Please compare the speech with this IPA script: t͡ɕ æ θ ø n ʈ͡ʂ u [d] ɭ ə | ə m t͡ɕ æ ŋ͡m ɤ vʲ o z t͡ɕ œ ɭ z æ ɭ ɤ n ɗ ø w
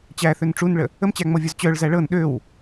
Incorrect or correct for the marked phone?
incorrect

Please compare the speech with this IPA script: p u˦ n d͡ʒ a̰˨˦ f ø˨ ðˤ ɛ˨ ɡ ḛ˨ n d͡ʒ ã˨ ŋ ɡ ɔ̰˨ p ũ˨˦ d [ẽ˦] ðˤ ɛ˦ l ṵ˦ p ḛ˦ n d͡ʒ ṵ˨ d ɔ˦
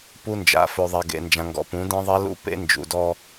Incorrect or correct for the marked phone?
correct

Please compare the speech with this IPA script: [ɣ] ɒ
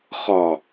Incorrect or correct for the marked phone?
incorrect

